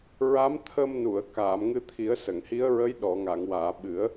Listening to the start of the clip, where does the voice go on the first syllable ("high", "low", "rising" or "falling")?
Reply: rising